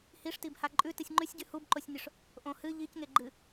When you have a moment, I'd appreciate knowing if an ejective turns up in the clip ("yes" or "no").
yes